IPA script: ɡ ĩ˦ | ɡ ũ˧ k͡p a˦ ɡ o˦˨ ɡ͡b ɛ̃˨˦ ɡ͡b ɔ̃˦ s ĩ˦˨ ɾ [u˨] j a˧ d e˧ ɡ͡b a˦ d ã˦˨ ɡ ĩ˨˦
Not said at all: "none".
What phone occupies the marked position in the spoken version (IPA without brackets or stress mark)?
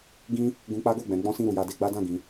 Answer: u˨